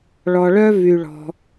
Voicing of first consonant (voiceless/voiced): voiced